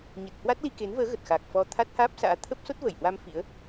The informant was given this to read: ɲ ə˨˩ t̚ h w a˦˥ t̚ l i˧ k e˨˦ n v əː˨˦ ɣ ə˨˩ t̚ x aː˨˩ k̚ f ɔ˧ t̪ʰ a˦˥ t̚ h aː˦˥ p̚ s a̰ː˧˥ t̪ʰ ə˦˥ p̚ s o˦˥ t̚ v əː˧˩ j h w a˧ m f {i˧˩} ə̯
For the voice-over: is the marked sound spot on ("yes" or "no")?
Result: no